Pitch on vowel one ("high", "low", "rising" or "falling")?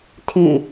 falling